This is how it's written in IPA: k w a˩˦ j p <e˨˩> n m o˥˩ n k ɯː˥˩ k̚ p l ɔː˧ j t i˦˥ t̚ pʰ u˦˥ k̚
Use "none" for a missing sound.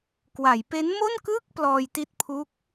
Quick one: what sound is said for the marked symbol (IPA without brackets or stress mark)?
e˦˥